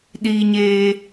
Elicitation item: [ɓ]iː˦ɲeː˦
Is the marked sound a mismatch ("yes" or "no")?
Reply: yes